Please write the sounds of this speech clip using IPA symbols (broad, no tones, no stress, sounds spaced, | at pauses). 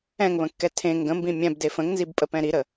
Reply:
ɛ̃ ŋ β ə̃ kː ɛ tʰ ẽ ŋ ɡ ə̃ m b ĩ mʲ ɛ̃ b d e f ə̃ ŋ n z i b pʼ ə p ɛ̃ ɾ i ɾ ə